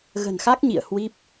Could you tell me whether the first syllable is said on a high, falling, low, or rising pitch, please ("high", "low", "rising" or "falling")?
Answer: low